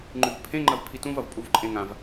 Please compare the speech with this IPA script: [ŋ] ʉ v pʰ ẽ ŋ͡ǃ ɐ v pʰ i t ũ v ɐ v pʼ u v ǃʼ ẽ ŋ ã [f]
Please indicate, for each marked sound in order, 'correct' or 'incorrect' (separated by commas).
incorrect, incorrect